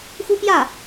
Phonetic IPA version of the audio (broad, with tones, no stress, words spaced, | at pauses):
xu˥pjä˥˩